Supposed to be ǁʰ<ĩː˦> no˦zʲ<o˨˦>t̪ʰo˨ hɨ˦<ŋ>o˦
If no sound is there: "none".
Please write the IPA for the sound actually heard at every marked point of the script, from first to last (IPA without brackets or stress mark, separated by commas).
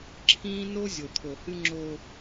ĩː˦, o˨, ŋ͡ǁ